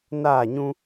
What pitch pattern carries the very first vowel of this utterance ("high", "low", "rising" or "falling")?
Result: falling